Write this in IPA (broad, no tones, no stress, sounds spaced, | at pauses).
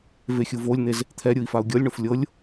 v e xʲ ɯ v o lʲ n̪ e z | t̪ʰ ɛ ɾʲ ɯ i̯ f a u̯ ɡʲ ɤ lʲ ɳ o f lʲ ɤ lʲ